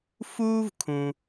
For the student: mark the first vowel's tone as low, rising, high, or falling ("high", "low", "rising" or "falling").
high